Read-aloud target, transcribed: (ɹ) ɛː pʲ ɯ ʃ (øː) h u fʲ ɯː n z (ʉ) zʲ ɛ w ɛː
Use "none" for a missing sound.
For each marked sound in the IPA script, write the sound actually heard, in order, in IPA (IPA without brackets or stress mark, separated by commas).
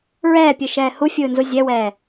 ɹ, ɛː, u